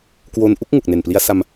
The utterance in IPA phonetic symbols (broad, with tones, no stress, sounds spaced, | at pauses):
k w o˧ n ʔ u˦˥ k̚ ŋ u˨˩ k̚ n e˨˩ n p l i˧ a̯ s a˧ m